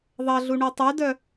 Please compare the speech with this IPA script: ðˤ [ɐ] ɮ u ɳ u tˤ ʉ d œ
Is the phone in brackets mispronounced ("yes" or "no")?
no